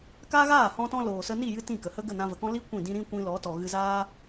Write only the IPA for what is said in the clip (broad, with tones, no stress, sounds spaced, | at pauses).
k aː˦ ɣ aː˦˨ h ɔ̃˦ t ɔ̃˦ l oː˨ s ə˧ n i˦˨ j ɨ˦ t ĩ˦˨ k ə˨ h ə˦ ɡ ə˦˨ n ã˧ v ə˨ k ɔ̃˦ l i˦ kʷ ĩ˦˨ d ĩ˦ ɾ ĩ˦ kʷ ĩ˧ l ɔ˨˦ t ɔ˨ ɣ ɨ˧ z aː˦